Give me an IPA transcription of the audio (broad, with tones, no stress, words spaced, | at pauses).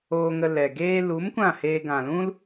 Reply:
oː˧ŋə˧lɛ˨ ɡeː˧lu˨˦m kʷã˦˨heː˧ ɡã˨lũ˦l